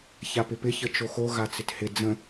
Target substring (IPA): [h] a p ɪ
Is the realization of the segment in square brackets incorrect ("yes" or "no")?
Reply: yes